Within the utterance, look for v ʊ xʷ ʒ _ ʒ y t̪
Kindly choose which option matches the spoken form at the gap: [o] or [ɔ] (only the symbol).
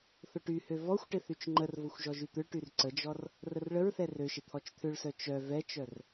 ɔ